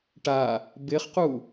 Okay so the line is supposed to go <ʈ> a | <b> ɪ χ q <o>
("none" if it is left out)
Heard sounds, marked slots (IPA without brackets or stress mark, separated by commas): ʈ, b, u